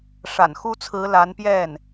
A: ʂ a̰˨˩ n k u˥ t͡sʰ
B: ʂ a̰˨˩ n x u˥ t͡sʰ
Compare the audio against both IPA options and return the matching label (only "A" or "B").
B